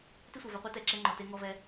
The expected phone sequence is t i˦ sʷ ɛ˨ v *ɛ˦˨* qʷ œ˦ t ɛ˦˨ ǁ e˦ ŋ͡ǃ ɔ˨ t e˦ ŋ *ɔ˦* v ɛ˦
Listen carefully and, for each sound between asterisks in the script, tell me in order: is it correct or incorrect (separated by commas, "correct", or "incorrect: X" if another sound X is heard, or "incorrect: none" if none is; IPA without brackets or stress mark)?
incorrect: ɛ˧, correct